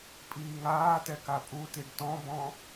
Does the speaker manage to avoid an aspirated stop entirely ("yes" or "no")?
yes